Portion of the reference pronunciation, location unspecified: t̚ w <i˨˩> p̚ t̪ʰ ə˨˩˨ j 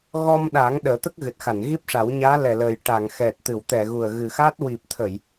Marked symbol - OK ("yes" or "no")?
yes